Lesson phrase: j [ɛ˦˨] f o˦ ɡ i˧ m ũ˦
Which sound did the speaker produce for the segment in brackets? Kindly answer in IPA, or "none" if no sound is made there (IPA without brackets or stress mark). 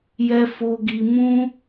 ɛ˦